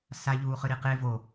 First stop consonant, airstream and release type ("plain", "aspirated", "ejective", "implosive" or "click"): plain